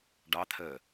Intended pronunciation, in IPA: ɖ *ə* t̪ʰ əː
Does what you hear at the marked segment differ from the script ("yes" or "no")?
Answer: yes